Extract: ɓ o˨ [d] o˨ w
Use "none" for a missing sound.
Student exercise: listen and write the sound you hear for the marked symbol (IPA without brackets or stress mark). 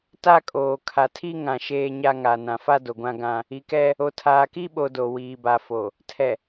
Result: d